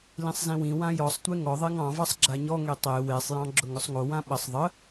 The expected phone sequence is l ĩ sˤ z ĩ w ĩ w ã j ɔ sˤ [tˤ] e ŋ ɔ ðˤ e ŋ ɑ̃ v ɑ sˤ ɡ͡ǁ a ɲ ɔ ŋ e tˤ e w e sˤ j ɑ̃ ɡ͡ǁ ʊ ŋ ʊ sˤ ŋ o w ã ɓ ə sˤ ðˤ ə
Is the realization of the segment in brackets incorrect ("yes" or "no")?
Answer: yes